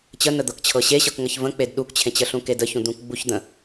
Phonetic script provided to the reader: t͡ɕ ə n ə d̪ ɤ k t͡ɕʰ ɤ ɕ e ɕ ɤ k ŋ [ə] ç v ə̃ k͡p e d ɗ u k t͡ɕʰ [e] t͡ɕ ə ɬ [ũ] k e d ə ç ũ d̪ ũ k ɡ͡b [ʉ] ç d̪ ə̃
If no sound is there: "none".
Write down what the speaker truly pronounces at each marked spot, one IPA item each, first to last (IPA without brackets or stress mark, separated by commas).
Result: ə, ẽ, ũ, u